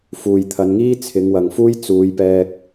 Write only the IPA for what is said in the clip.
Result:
f uː˨ j t̪ʰ ɐ˨˧ n ŋ iː˥ t͡sʰ ɪ˨˧ ŋ w ɐ˨ ŋ f uː˥ j t͡s uː˨˧ j p ɛː˧ k̚

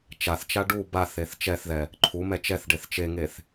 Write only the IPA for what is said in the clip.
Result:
t͡ʃ a θ t͡ʃ a ɖ u b a θ e θ t͡ʃ ɛ θ ð ɛ | ǃʰ u m ɛ t͡ʃ ɛ θ ɖ e θ t͡ʃ e ŋ e θ

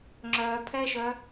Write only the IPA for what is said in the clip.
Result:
ŋ͡ǁ œː pʰ ɛː ʃ œ

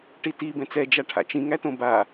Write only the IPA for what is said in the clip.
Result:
ʈ i t i b ɛ̃ t͡s ɛ d͡ʒ a ʈʰ a̰ t͡ʃ ĩ ŋ æ t õ b a

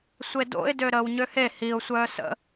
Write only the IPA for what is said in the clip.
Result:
sʷ e d o̰ ɪ̯ d ø ɾ əː w ɲ ø h e h i ʊ̯ sʷ œː s ə̰

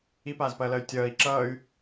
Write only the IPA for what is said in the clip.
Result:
i p aː z p ɐː l ɐ y̯ tʲ ʌː i̯ ǁ ʌː y̯

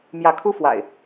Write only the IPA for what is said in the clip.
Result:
m j ä˨˦ kʰ u˦ f w a̰˨˩ ɪ̯

